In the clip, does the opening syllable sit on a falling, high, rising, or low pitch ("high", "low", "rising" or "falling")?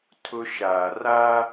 high